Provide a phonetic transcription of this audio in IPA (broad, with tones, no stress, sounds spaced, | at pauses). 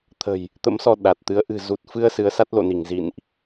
t̪ʰ ə̤˨˩ j | t̪ ə̰˧˥ m s ɔ˧ ɗ a˨˩ t̚ t̪ ɨ˨˦ ə̯ ʔ ɨ̤˨˩ z u˨˩ t̚ f ɨ˧ ə̯ s ɨ˨˦ ə̯ s a˦˥ t̚ l o̰˧˨ n i˧˩ ŋ z ḭ˧˨ n ʔ